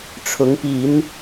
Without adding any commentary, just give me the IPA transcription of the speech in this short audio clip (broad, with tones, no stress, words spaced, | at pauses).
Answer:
ʈ͡ʂʰʊ˨˦ŋpi˨˦n